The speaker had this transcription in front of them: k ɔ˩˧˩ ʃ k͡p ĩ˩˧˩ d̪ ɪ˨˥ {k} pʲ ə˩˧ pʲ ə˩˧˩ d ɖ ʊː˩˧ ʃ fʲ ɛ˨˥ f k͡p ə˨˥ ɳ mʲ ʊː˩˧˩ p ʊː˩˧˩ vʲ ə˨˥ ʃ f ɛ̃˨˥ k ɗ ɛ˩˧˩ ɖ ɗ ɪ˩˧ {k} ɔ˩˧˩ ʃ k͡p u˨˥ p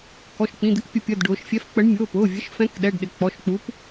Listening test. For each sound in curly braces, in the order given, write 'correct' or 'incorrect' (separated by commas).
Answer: correct, incorrect